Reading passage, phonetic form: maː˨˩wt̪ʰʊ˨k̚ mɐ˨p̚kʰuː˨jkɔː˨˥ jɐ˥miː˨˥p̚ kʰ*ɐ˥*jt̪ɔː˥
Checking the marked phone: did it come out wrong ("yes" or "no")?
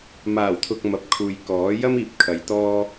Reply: yes